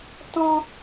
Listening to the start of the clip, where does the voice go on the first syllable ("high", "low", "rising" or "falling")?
high